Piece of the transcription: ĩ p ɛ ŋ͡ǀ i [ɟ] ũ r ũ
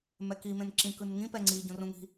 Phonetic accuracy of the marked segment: correct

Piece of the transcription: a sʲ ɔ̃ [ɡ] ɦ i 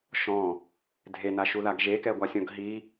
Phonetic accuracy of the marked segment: correct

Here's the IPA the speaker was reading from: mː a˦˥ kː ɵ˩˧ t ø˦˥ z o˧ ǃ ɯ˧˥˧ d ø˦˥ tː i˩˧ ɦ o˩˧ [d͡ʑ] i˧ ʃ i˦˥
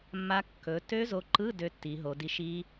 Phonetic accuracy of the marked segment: incorrect: d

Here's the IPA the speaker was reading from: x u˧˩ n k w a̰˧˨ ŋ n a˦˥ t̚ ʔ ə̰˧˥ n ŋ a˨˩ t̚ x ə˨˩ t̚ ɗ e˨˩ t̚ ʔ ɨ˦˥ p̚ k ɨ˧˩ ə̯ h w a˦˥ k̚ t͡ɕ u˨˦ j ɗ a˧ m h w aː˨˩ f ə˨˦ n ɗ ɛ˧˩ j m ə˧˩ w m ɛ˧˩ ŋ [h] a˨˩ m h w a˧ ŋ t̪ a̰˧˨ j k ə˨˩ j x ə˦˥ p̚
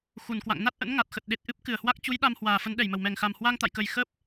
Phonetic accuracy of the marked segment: incorrect: x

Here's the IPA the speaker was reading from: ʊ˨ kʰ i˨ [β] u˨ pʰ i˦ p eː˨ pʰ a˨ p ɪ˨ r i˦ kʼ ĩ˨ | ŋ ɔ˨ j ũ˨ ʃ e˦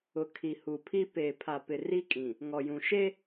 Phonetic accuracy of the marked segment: incorrect: h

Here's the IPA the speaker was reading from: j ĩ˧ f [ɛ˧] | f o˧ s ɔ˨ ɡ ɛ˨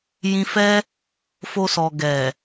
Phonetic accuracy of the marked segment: incorrect: ɛ˦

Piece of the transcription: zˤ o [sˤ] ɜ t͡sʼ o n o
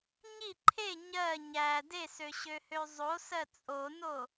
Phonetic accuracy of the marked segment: incorrect: s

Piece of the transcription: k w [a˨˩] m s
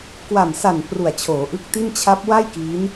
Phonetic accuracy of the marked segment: correct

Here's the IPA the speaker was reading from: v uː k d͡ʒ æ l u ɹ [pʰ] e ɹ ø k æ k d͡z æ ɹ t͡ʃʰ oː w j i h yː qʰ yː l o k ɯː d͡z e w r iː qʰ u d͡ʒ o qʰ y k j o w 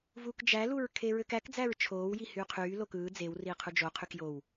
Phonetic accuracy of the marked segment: incorrect: kʰ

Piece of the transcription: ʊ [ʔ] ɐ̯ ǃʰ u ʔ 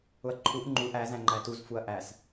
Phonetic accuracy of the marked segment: incorrect: none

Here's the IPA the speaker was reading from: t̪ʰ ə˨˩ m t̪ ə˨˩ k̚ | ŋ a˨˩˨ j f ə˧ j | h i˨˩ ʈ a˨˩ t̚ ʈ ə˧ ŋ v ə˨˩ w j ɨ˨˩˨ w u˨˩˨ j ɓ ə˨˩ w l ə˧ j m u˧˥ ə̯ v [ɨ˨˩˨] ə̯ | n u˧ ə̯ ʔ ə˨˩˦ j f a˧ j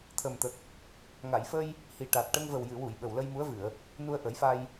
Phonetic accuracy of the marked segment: correct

